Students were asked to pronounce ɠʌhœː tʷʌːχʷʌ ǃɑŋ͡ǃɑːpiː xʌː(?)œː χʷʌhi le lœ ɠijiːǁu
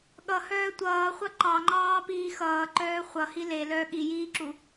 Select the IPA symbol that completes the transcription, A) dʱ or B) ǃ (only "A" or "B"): B